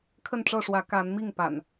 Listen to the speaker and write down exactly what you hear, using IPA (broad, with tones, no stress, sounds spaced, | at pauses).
kʰ ə˥˨ n ʈ͡ʂ ɤ˥˨ ʂ w ä˨˦ k a˨˦ n m i˥˨ ŋ p a̰˨˩ n